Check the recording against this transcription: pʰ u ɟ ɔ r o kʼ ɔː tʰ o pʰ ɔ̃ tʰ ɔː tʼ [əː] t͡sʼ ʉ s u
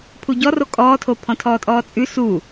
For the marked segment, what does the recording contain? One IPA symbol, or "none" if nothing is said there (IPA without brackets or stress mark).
ɔː